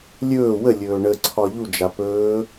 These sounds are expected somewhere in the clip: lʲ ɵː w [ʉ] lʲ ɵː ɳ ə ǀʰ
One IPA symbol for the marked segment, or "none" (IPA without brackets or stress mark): ə